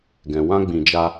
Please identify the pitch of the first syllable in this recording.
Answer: low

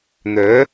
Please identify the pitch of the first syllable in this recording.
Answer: rising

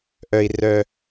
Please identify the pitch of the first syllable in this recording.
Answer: low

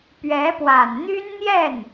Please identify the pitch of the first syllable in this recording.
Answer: rising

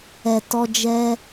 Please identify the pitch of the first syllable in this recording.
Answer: low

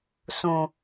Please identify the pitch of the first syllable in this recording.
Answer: low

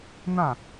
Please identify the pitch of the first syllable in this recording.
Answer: falling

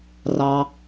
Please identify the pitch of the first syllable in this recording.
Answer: low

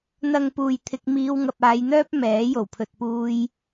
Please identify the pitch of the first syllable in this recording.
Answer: low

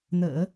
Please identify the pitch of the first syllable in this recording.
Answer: low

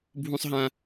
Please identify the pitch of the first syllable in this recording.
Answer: high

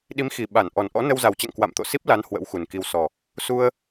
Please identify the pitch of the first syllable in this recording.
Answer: rising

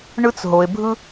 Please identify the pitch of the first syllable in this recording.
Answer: high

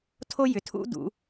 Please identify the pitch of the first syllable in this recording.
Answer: high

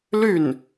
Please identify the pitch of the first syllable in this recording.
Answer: falling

